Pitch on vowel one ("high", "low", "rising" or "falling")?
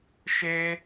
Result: high